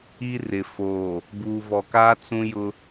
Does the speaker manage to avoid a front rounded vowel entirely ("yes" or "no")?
yes